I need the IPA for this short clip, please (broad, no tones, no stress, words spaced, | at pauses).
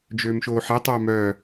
d͡ʒøːmʃoːħɛ tˤœːmœː